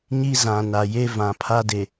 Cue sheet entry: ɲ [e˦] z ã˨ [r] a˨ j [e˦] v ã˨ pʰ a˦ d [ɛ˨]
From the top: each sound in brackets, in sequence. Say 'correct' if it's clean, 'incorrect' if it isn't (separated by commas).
incorrect, incorrect, correct, incorrect